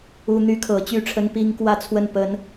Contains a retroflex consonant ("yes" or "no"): yes